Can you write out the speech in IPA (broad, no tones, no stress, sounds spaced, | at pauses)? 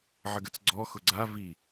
ʕ ə ɡ ə t͡s ɡ͡ǀ ɔ x ʊ ɡ͡ǀ a v i